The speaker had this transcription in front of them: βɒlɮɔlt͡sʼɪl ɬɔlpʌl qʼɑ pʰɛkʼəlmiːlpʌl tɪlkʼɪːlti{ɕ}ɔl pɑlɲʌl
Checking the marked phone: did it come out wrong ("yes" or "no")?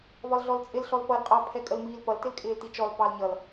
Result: yes